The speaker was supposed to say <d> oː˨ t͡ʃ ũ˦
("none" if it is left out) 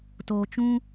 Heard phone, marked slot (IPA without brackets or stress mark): t